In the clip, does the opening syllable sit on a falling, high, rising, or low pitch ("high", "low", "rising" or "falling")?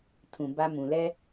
low